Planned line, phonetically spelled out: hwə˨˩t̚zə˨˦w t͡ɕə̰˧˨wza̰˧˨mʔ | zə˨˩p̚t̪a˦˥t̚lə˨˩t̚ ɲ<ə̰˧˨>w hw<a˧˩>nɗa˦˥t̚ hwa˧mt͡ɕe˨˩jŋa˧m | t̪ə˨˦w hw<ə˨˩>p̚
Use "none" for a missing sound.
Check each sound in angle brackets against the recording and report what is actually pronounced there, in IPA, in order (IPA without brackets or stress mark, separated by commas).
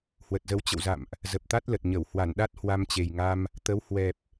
ə˧˩, a˧˩, ɛ˨˩